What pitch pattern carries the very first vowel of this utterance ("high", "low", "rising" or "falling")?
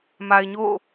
low